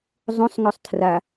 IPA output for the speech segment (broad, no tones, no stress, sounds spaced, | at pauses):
zˤ õ sˤ ŋ ɵ sˤ tʰ r a